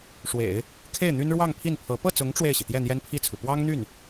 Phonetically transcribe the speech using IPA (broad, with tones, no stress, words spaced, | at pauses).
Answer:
ʂwḛ˨˩˦ɪ̯ | kʰe˥˩ɪ̯n̪y˥n ɻwɑ˥˧ŋpʰi˥˩npʰɤ˧˥ pɤ˥˩t͡sʊ˧˥ŋ ʈ͡ʂwe˥˩ɪ̯ɕi˩ t̪jɛ˥˩n̪jɛ˥npʰi˥˩t͡sʰu˩ pwɑ˥ŋn̪y˥˩n